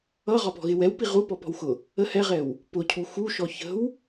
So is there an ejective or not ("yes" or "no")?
no